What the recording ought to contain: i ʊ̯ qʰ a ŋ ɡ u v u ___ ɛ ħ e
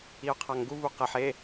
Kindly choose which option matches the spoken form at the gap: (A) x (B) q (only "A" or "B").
B